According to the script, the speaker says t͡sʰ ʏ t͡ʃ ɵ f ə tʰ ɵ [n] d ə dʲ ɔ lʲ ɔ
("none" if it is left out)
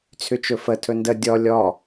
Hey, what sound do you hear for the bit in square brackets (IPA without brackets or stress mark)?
n